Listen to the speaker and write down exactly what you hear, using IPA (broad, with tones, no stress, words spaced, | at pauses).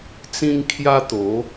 t͡sĩ˦ŋkʰja˦t̪o˨˦